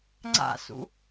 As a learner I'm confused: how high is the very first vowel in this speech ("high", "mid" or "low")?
low